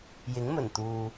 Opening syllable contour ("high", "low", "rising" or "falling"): rising